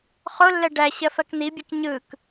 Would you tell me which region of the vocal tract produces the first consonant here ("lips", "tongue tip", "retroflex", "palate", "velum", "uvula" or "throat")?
uvula